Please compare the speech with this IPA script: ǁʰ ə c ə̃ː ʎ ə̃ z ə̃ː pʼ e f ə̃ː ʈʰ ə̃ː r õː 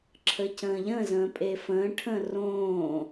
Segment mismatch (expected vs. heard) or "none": none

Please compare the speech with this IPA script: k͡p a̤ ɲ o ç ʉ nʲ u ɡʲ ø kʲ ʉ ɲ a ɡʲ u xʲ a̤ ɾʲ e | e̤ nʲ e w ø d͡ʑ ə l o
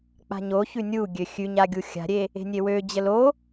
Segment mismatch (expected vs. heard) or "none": kʲ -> xʲ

